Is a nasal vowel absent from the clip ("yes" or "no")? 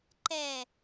yes